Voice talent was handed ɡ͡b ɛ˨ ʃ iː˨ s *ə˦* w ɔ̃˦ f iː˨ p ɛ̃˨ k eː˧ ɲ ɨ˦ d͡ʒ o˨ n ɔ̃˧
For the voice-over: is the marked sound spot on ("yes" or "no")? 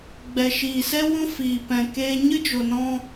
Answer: no